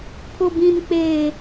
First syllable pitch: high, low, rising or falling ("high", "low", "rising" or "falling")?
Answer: high